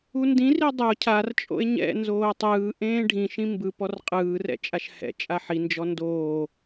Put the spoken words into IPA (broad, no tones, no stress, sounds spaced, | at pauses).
u n d ĩ r i dˤ o cʰ a r t͡ʃʼ o̰ e̯ ɲ ɛ̰ n z oː tˤ ɯː ʔ ẽː ɖʱ ĩ ʃ ĩ m b ɯ p ɔ r qʼ ɯː r ɛ̰ t͡ʃʼ a ʃ h ɛ̰ t͡ʃʼ a ħ i n d͡ʒ ɔ n d oː